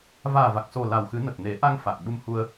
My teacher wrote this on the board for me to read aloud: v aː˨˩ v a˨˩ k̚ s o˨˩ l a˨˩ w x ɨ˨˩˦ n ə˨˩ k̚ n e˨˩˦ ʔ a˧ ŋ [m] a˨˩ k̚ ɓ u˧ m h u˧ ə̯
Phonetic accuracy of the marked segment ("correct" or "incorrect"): incorrect